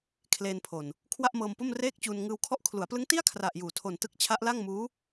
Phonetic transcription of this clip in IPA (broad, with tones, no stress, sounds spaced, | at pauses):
kʰ l eː˧ n pʰ o˨˩ n | kʰ w a˥˩ ʔ m ɤː˧ m p o˥˩ m r eː˥˩ k̚ t͡ɕ uː˧ n ŋ ɯː˧ w kʰ ɔ˦˥ ʔ kʰ l u˩˦ a̯ p l ɯ˦˥ ŋ t i˥˩ a̯ kʰ r a˨˩ ʔ j uː˩˦ tʰ o˨˩ n t ɯ˦˥ k̚ t͡ɕʰ a˦˥ ʔ l a˥˩ ŋ m uː˦˥